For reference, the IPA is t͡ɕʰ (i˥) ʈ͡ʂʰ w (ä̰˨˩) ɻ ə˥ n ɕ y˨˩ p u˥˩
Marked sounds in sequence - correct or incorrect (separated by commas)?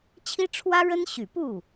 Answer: correct, incorrect